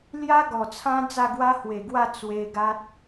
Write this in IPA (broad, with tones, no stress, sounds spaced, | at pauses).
l j a˦ ɡ ɔ˨˩ t͡sʰ ã˦ d͡z a˥˧ ɡ w a˦ h w e˨˩ ɡ w a˥˧ t͡s w e˧ ɡ a˦ t̚